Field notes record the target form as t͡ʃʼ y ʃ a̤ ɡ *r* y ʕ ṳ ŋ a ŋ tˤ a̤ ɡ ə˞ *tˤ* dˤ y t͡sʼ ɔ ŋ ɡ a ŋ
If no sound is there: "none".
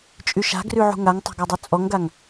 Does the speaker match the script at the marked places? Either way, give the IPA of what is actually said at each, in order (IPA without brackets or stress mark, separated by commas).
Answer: r, none